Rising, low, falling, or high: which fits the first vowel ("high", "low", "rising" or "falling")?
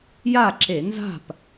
falling